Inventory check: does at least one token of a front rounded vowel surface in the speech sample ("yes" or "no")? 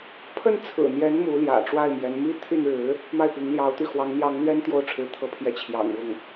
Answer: yes